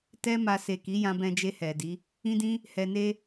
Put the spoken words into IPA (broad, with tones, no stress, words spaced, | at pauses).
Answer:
tɛ˦ma˧ se˨ki˨˦ jã˧bɛ̃˧d͡ʒe˧ hɛ˨di˨˦ | ĩ˦dĩ˦ | hɛ˧ne˦